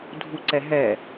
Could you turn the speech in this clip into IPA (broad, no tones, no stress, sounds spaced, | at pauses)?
dʱ u ǀ ɛ ɦ ɛ